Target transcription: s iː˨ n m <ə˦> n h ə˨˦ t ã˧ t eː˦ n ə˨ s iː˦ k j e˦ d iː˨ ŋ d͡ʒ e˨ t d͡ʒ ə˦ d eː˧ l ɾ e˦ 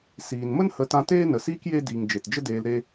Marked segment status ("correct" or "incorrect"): correct